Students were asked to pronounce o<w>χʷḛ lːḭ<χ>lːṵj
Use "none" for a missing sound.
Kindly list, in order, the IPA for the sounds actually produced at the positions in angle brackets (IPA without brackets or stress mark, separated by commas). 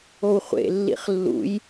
w, χ